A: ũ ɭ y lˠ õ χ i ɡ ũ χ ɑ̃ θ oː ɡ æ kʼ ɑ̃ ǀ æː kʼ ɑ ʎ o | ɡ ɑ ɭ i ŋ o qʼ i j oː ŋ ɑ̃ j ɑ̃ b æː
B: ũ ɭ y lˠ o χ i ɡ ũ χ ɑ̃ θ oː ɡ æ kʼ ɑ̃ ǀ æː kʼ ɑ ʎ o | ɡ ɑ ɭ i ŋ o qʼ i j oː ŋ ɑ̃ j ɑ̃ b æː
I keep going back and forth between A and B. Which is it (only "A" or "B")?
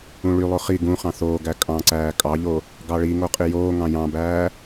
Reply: B